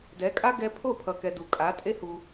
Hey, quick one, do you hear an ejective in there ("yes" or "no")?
yes